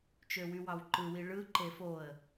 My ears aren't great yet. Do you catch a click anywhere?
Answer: yes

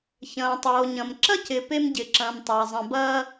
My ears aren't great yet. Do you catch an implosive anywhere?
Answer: no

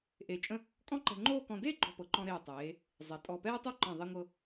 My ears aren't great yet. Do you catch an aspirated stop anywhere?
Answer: no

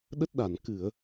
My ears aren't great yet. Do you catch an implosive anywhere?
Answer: yes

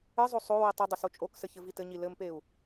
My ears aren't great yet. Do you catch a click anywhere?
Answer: no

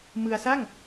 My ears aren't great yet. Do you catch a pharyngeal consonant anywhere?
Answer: no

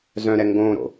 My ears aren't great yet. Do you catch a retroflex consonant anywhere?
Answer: no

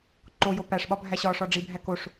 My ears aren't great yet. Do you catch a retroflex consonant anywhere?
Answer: yes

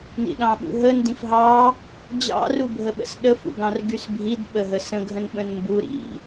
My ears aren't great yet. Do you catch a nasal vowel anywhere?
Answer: yes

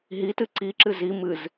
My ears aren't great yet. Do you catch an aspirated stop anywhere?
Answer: no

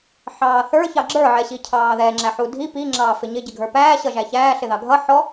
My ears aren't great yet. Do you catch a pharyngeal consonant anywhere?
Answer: yes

